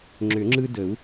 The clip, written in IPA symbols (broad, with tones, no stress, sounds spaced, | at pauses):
ŋ͡ǁ ʏ˨˩˦ ŋ͡ǁ ɯ˦ d ə˨˩˦ u̯